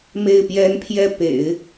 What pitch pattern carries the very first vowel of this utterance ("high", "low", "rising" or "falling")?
falling